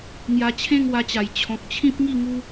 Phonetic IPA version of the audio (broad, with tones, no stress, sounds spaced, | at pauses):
ŋ j a˧ t͡ɕʰ ẽ˥˧ ŋ w a˧ t͡ɕ a˨˩ j t͡ɕʰ ɔ̃˨ k̚ t͡ɕʰ ĩ˦ p̚ ŋ i˥˧ ŋ u˦